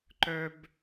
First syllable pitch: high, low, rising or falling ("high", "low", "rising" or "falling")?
high